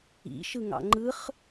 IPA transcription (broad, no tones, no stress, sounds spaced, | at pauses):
ḭ ʃ ɯ ŋ ɑ̰ ŋ͡ǃ ɯ χ